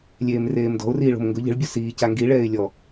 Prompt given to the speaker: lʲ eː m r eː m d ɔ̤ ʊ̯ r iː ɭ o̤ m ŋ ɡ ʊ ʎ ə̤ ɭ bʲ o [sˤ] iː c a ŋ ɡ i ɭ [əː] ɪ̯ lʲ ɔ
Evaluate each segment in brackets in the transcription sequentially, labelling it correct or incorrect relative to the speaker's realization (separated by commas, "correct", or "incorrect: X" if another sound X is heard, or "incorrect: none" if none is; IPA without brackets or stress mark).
incorrect: s, incorrect: ɛː